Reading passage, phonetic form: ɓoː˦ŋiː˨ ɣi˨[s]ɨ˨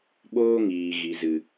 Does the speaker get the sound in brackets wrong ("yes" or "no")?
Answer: yes